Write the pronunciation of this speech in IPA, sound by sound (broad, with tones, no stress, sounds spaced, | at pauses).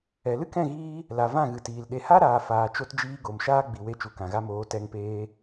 ɛ˨ l ɨ˦ k ɛ̃˦˨ ɣ iː˧ | l a˨ v ã˦˨ ɣ ɨ˨ t iː˨ l ɗ e˨ h a˦ ɾ aː˨ f aː˨ t͡ʃ o˧ t d͡ʒ iː˧ ɡ o˨ m ʃ aː˦ ɡ͡b i˨ w e˧ t͡ʃ u˨ k ã˨ ɣ a˧ m oː˨˦ t ɛ˧ ŋ p eː˧